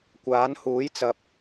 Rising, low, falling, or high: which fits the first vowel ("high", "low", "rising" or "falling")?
rising